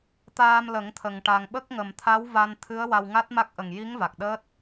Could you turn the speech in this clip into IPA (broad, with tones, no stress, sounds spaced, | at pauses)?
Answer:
t̪ aː˧ m l ə˨˩˦ ŋ t̪ʰ ə˨˩ ŋ ʈ a˨˩ ŋ ɓ ə˦˥ k̚ ŋ ə˨˩ m t̪ʰ a˧˥ w v a˧ n t̪ʰ ɨ˧˥ ə̯ w a˧ w ŋ a˦˥ t̚ m a˦˥ k̚ ʔ ə˨˩ ŋ j i˧˥ ŋ v a˨˩ k̚ ɗ əː˦˥ t̚